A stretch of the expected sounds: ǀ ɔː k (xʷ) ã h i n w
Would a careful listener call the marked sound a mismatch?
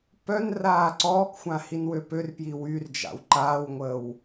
no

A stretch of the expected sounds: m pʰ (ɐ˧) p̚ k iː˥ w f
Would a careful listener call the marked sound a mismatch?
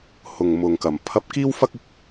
no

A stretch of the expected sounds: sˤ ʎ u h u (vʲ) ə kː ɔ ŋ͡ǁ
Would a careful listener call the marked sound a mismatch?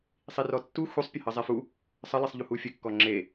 yes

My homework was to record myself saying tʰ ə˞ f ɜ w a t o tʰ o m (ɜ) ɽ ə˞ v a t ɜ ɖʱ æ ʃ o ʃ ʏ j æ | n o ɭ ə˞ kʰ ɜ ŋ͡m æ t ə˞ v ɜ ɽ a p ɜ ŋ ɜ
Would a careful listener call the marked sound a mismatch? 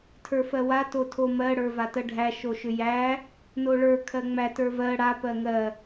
no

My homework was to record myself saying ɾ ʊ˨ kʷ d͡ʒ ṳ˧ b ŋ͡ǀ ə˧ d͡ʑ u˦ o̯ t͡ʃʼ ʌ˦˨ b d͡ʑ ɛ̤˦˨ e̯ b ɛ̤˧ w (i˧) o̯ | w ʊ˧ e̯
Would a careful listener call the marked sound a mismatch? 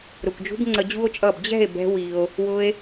no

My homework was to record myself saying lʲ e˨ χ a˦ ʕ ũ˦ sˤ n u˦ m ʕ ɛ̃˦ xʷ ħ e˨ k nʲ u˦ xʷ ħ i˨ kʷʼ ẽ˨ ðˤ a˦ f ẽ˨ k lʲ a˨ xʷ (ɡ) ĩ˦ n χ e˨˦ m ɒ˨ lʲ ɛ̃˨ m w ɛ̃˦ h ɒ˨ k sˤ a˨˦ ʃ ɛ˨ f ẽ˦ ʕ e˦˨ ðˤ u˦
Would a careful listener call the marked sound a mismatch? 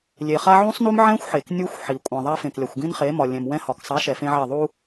no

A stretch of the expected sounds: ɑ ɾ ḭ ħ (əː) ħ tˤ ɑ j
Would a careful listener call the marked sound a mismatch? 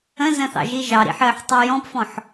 no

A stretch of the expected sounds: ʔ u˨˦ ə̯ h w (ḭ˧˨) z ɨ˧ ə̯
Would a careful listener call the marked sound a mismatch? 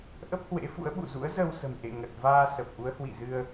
no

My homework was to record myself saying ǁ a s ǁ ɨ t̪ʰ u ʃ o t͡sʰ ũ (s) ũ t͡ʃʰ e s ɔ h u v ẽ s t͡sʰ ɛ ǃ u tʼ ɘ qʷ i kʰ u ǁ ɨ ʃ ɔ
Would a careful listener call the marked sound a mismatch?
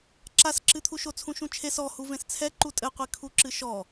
yes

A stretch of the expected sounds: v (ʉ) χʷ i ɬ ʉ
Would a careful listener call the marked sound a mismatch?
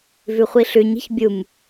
no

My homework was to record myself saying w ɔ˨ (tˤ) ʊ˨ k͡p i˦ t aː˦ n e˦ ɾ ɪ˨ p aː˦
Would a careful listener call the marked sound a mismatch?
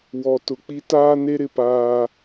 yes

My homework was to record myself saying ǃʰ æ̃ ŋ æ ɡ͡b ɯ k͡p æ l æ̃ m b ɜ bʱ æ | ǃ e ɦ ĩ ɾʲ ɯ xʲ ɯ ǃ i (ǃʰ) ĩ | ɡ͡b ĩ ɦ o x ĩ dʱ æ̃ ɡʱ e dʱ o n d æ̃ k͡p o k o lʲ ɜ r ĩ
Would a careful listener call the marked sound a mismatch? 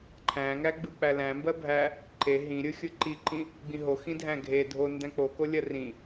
yes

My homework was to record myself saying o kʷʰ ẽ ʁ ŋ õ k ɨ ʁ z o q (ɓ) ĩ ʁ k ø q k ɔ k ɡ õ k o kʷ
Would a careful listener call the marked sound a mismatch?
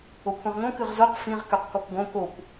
yes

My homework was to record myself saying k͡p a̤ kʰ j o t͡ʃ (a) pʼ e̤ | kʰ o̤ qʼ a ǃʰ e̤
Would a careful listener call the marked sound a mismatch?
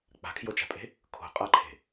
yes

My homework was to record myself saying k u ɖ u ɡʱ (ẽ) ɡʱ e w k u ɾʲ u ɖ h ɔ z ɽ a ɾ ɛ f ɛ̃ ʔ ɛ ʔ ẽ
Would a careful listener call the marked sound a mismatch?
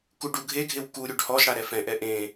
yes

